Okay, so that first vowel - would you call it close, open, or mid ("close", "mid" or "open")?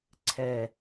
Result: mid